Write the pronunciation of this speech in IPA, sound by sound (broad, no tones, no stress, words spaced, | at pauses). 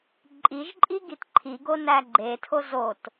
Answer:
ǃʼiʒǃʼi ɡitǃʰiɡo næɡ͡ǃetʰo zot